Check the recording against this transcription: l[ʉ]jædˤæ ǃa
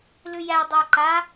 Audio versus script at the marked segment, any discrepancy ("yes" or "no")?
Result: no